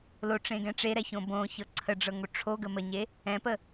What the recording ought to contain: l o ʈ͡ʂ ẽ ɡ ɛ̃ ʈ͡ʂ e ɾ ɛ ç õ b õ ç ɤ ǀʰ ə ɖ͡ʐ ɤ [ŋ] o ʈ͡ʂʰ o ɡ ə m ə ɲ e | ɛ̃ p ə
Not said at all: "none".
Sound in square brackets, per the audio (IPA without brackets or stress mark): ŋ